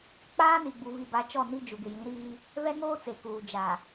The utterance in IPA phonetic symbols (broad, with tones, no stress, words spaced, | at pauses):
k͡paː˦ni˨ ɡ͡bu˨vi˨ba˨˦ t͡ʃɔ˦˨ni˦ d͡ʒu˨ɡɪ˨jĩ˨˦ɾiː˦ | vɛ˦ŋoː˦t͡se˨kuː˨ d͡ʒa˨